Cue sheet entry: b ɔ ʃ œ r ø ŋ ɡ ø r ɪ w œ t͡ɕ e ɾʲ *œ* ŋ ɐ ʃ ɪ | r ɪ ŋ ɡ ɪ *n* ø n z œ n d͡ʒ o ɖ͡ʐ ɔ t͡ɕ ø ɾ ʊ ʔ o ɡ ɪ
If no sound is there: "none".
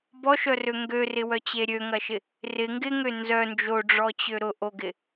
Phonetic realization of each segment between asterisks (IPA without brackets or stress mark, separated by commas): ø, ŋ